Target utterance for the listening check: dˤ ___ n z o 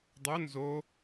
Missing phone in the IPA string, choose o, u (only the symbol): o